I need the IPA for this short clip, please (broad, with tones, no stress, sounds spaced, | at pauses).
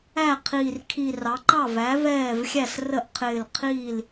æ˥˩ qʰ iː˧˩ r kʰ i˧˩ r ɑ˩˥ ǃ ɑ˥˩ v æ˩˥ v ɛː˥˩ v xʲ æ˥˩ s r ə˥˩ ʔ qʰ ɪː˧˩ l qʰ iː˥˩ l